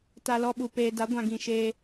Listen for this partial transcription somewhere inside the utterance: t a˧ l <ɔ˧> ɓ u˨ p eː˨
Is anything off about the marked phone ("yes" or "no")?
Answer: no